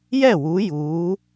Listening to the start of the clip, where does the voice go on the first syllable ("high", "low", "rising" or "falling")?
falling